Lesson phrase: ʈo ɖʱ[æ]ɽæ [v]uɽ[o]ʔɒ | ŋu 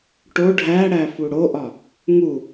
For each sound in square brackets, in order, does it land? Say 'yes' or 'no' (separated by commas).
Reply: yes, no, yes